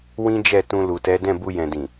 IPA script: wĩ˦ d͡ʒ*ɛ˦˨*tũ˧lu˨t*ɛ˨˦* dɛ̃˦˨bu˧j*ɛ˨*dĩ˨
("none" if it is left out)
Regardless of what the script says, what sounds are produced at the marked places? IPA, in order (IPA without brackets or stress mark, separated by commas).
ɛ˦˨, ɛ˨˦, ɛ̃˨